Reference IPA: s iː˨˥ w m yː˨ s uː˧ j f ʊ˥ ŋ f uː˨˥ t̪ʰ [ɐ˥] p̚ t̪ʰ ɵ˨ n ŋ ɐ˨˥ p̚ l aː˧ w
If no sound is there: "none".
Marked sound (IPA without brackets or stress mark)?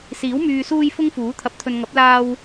ɐ˨˥